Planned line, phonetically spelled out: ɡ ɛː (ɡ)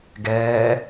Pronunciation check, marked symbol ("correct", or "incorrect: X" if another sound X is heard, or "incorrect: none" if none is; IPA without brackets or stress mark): incorrect: none